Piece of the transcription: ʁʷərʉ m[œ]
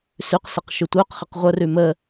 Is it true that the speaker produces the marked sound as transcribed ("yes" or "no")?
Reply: no